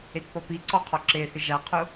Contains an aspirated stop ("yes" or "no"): yes